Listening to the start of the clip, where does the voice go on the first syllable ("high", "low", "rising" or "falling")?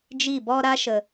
falling